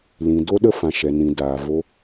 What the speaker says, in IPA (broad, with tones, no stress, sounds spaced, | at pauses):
l ĩ˨ d o˧ ɗ ə˧ f ã˨ ʃ ɛ˨ n ĩ˨ d aː˨ v o˧